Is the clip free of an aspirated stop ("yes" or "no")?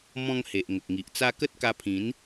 no